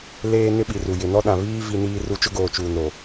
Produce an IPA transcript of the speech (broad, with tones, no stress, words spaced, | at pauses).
leː˦ nɪ˦ɓi˨ru˨ jɪ˨ nɔ˦ ɗã˨βiː˦ vi˦ niː˦ru˦ t͡ʃʊ˦ɡoː˨ t͡ʃuː˨nɾo˨